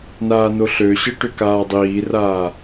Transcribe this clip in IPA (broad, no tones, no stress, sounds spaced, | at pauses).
n aː n o ɬ ø ɕ ɯ ʈ ʏ k aː dˤ iː r aː